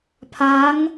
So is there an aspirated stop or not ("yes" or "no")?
yes